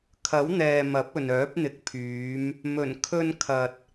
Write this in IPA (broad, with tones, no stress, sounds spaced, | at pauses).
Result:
kʰ ɐ˨˥ w n̪ ɛː˨ m ɐ˨˥ p̚ ɵ˨ n œː˨˥ p̚ n̪ ɪ˨˥ k̚ pʰ yː˨˧ m | m ɵ˨˩ n kʰ ɵ˧ n kʰ ɐ˨ t̚